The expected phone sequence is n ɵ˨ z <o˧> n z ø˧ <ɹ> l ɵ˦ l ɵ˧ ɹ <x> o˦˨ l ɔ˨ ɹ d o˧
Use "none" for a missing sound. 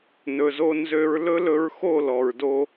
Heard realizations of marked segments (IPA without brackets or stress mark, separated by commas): o˧, ɹ, x